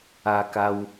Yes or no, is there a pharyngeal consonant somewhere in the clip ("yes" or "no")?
no